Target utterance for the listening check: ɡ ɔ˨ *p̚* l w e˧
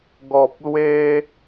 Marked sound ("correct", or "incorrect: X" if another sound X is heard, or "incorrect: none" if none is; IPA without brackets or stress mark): correct